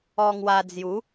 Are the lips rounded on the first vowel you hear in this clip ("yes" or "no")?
yes